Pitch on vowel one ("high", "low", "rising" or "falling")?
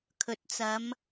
low